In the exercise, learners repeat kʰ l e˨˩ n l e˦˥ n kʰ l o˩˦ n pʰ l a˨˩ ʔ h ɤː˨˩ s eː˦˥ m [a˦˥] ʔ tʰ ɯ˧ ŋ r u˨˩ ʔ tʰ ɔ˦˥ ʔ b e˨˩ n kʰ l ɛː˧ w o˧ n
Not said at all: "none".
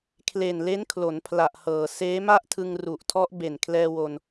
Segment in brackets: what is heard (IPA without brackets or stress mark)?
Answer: a˥˩